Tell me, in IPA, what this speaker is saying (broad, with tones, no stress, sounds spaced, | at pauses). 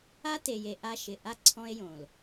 a˦ t e˨ j e˨ ʔ a˦ ʃ ɪ˨ ʔ a˦˨ ǀʰ ɔ̃˦ e̯ j õ˨ l